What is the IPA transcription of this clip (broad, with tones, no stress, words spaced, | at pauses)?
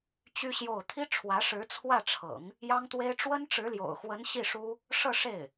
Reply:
t͡ɕy˥ɕjo˥˩ʊ̯ t̪ʰi˥ʈ͡ʂʰwä˧˥ ʂɻ̩˧˥t͡sʰwä˥˩ʈ͡ʂʰɤ̰˨˩˦ŋ | jɑ˥ŋt̪we˥ɪ̯ ʈ͡ʂwə˥nʈ͡ʂɻ̩˧˥ljo̰˨˩ʊ̯xwə˧˥n ɕi˥˩ʂu˥ | ʂɤ˥˧ʂe˥˩ɪ̯